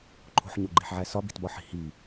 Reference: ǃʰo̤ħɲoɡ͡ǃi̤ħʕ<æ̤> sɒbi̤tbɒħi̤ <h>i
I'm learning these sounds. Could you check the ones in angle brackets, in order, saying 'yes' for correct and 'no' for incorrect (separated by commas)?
no, yes